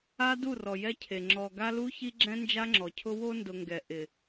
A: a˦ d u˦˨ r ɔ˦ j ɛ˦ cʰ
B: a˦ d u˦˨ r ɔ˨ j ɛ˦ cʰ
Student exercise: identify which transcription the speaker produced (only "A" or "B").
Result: B